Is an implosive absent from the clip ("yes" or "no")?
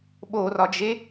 no